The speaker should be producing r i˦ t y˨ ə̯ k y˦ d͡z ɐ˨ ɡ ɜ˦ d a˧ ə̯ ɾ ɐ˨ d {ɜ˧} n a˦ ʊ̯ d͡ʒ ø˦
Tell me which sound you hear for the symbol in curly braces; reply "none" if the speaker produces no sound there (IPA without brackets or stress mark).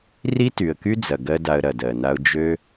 ɜ˨